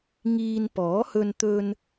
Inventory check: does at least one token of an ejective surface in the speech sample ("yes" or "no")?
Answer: no